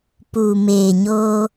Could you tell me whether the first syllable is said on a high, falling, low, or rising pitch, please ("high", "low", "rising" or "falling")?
low